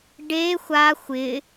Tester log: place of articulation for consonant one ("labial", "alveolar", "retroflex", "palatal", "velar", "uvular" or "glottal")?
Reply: retroflex